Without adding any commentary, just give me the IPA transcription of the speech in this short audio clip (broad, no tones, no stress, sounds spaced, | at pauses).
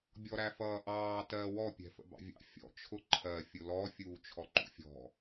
bʲ ɔ ɾ æ f ʌː ʔ ɑː t ɜ w ɔ pʲ ɛ̤ f ə̰ b ɑ̰ vʲ ɑ̰ fʲ ɔ̰ t͡ʃʰ ʊ ǃʰ ɜ fʲ ʊ l ɔ fʲ uː t͡ʃʰ ɔ ǃ ṵ fʲ ɔ̤